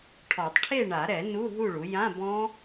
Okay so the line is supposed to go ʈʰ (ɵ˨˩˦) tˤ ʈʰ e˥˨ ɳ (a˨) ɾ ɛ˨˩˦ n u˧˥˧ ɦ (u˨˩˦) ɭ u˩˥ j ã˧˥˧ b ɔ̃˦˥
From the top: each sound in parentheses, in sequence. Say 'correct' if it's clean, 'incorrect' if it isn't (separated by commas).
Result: incorrect, incorrect, incorrect